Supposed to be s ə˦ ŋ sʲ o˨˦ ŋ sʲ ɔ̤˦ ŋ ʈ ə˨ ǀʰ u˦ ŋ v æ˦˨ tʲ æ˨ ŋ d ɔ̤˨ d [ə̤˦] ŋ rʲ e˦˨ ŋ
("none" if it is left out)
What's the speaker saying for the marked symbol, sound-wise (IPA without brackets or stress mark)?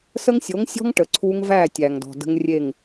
ə̤˦